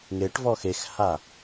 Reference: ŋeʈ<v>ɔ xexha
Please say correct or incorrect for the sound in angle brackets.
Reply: correct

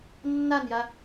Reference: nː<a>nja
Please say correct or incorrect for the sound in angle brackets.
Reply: correct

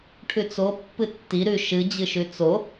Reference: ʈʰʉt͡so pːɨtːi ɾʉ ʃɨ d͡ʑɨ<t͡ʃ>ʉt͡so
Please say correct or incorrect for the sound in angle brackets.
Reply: incorrect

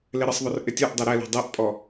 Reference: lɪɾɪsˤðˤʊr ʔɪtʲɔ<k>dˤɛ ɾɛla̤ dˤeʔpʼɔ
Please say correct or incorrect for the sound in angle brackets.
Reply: incorrect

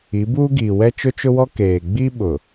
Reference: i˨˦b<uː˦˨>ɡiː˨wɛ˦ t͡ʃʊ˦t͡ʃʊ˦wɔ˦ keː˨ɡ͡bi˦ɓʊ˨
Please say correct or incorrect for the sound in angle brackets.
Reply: incorrect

